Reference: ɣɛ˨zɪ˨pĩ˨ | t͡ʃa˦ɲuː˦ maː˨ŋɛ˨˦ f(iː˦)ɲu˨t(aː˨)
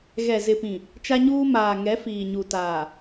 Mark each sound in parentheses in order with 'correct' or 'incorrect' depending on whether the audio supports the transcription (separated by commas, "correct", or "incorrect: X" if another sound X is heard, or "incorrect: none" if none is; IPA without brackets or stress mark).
incorrect: iː˨, correct